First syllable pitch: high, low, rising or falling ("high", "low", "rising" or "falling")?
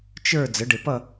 falling